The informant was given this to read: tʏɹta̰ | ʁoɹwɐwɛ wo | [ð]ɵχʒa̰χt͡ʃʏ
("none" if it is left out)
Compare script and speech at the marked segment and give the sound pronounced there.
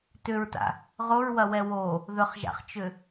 ð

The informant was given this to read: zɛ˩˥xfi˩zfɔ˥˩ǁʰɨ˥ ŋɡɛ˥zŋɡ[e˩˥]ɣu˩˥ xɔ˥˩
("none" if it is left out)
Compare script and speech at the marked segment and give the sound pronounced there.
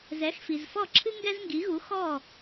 i˩˥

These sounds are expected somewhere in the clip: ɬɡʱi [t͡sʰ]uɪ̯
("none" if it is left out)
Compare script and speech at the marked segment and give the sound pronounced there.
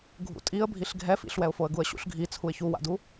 t͡sʰ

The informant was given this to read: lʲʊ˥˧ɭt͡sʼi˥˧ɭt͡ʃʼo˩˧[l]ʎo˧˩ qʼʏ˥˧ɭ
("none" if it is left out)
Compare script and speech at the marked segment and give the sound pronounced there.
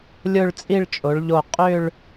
ɭ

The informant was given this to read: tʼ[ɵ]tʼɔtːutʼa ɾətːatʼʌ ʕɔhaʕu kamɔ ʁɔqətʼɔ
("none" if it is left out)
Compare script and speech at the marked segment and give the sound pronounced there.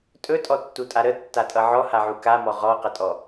ɵ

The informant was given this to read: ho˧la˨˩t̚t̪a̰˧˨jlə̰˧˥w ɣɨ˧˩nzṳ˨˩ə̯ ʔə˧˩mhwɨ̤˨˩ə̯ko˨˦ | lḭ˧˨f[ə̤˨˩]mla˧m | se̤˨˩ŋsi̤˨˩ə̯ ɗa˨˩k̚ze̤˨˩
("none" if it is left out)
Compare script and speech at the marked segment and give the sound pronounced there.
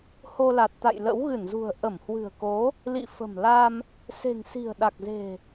ə̤˨˩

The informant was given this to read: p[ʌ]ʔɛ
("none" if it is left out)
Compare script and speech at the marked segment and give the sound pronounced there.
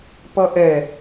ʌ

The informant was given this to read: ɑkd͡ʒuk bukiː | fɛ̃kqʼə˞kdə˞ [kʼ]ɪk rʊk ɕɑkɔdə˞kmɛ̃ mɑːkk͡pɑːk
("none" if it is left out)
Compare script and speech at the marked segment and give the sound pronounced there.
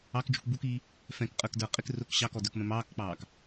qʼ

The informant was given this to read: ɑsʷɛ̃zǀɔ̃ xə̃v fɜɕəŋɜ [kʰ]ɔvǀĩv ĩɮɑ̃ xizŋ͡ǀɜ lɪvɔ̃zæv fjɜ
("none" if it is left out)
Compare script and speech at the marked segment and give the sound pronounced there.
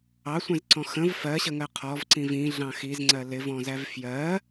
qʰ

